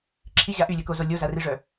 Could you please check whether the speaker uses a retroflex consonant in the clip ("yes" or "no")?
yes